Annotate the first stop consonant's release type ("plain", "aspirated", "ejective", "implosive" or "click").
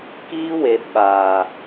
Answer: plain